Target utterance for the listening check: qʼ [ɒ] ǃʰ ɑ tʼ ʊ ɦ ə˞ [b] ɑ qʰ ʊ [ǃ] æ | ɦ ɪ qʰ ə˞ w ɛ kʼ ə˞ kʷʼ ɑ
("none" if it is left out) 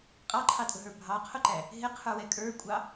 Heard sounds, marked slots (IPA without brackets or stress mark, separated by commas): ɑ, bʱ, ǃ